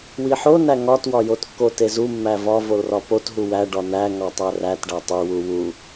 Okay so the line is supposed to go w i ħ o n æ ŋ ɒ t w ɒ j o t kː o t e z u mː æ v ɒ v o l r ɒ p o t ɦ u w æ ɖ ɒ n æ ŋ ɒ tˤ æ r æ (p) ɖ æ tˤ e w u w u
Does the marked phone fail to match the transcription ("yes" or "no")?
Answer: yes